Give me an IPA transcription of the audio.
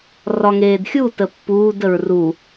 rɒŋeːdxʲu təpːuːd əɹru

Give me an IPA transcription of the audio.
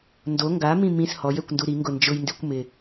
ndo ŋɡamĩ mĩs hɔjɛkʷndu ɾiŋɡʊ nd͡ʒʊjndikʷ mɪ

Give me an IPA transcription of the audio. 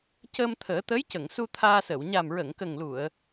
cə˧mt̪ʰəː˨˩˦ t̪ə˧˥jcə˨˩˨ŋsu˧ t̪ʰaː˧səː˨˩˨w ɲa˨˩mɹə˨˩˨ŋkə˨˩ŋlu˨˩˨ə̯

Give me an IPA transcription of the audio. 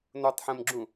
notˤħẽmɡ͡ǁũ

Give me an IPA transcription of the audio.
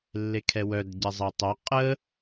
lːekʰɛwœd ɟɛzˤɛtˤœ qʼə

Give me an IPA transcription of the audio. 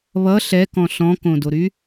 βʌ ɬɛkɔ̃ ɬɔ̃kõdoɾy

